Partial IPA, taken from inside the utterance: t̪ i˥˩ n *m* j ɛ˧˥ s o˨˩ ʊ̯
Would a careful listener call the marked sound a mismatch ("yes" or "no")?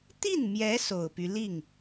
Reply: no